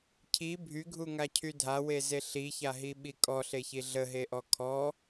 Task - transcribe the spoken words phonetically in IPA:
cʰ i bʱ y ɡʱ u ŋ a cʰ y dʱ a w e z e ɬ i ç a ɦ i ɓ i kʼ ɔ ɬ e ç i ɮ ə ɦ e ʔ ɔ kʰ ɔ

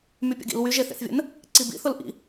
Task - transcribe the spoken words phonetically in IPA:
m y pʲ ə̰ ɡ ḭ l w y ʒ e θ ḛ θ vʲ ə̰ n | ǀ i b ḭ θ ʊ l ʔ ḭ

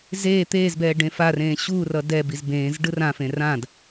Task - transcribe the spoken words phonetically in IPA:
z eː t̪ eː z b ɛː ɖ ẽ f a r ẽː ɕ u r ʌ d ɛ b i z b ẽː z ɖ ɯ r ã f ẽ r ã d

